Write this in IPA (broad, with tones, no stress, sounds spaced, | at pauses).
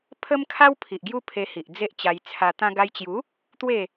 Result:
pʰ ə˦ m kʰ a˦ w pʰ i˨ ʔ ɡ j u˦ pʰ e˧ h i˨ ʔ d͡z e˦ ʔ t͡ɕ a˧ j t͡sʰ a˧ t̪ ã˧ ɡ a˧ j t͡ɕ j u˨˦ | t̪ w e˥˧